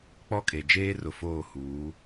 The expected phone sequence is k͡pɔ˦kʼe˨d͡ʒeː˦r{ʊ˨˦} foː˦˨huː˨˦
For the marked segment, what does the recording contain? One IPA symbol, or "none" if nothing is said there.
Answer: ʊ˨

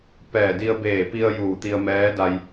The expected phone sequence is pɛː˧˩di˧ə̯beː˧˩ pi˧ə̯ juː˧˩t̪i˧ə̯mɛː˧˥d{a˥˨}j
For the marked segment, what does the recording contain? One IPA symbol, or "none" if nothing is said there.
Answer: a˧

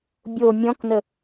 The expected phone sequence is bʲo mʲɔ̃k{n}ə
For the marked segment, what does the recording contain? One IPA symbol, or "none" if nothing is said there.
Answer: n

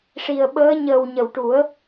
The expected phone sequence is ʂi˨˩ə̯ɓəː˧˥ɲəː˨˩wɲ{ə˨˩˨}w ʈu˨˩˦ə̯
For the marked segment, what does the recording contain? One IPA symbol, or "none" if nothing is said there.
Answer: ə˨˩˨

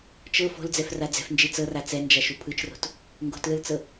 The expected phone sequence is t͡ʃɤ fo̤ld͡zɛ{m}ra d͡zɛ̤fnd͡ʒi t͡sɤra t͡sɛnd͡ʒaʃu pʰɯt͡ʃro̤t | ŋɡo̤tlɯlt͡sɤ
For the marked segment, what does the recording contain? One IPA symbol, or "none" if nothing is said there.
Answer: f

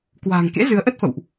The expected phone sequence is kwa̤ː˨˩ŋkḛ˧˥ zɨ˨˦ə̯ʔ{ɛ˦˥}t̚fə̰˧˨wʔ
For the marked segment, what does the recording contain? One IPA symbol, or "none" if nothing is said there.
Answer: ə˦˥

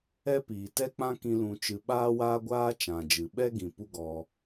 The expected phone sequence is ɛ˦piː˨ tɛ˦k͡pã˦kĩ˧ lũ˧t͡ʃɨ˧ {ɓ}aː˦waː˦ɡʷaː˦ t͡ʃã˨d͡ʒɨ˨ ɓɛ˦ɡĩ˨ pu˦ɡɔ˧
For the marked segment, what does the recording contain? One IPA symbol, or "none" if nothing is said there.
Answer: ɓ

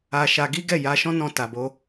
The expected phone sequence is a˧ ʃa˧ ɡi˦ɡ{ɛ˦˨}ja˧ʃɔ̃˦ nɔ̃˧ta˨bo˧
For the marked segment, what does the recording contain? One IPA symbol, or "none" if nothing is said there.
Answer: ɛ˦˨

